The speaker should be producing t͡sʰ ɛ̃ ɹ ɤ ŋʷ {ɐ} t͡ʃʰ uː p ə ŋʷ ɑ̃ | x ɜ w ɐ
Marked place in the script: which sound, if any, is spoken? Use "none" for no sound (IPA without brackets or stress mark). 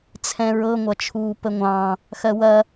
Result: ɐ